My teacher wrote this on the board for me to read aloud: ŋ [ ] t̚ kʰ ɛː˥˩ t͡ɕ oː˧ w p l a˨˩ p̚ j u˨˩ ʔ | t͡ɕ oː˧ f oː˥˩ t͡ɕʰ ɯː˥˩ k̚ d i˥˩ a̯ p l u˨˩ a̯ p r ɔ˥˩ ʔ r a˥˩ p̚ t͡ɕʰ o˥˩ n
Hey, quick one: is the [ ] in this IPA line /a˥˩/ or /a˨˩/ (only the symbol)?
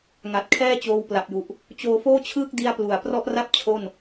a˨˩